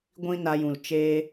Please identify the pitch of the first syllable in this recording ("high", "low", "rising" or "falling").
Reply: high